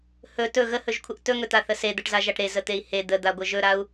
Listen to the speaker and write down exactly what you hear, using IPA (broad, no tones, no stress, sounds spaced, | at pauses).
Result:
h ɵ t ɵ ɣ ə h ɵ ʒ kʷʰ ə ʔ t ɵ ŋ ɵ t̪ a θ ə s e d̪ ə ʈ z a ʒ a ʈ ɾ e z ə t̪ e i̯ h e d̪ ə d̪ a ɡʷ ə ʒ ɵ ɾ a u̯